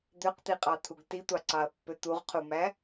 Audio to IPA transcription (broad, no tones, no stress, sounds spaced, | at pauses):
d̪ ø q t̪ i qʼ ɑ t̪ʰ u ɡ t i tʷ ɑ ǀ ɑ ɐ̯ pː ø t̪ u ʁ qʰ u m æ